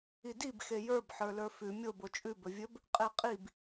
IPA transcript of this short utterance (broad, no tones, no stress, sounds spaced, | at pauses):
i d i b x e j ə˞ b ħ ə˞ l ə˞ f ʉ mʲ o b o t͡ʃʼ ʉ b ɵ vʲ ɵ b | qʼ e qʼ i b